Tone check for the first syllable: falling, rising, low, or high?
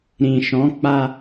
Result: low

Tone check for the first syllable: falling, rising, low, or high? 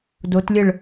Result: rising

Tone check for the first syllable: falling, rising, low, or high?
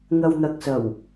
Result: low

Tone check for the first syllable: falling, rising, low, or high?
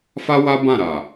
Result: high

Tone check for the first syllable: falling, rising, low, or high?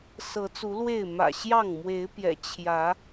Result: rising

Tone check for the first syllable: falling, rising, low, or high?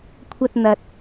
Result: high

